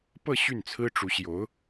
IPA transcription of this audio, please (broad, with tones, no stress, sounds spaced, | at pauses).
p ɤ˥˧ ɕ y˥˩ n t͡sʰ ɹ̩˥ ʈ͡ʂ u˧˥ ɕ j o˧˥ ʊ̯